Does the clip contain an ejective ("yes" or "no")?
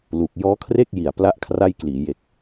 no